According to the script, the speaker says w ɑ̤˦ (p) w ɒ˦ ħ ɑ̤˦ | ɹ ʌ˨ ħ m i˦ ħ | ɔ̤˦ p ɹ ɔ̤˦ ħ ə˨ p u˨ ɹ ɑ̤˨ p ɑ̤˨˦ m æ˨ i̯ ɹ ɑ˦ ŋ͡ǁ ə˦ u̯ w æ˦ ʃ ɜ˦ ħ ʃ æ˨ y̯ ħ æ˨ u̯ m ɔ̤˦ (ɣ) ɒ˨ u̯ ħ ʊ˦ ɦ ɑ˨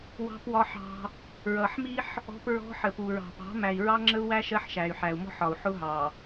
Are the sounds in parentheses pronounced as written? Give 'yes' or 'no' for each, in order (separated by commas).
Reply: yes, no